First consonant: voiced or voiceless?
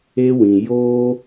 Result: voiced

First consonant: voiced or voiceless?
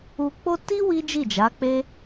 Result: voiceless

